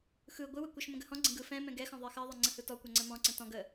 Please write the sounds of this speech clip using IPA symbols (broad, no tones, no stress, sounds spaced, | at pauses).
x ɯ ɡʷ ɯ w ə kʷ ɯ ʃ m ə̃ ɡ ə h ɔ̃ ɡ͡ǀ ə̃ ɡ ɯ f ɛ̃ m ɛ̃ ɡ ɛ x ɔ̃ ðˤ ɜ x ɜ ðˤ ɜ ŋ͡ǀ ə̃ h ɯ t ɔ kʷ ɛ ŋ͡ǀ ə m ɔ̃ ǀ ə̃ t ɔ̃ ɡ ə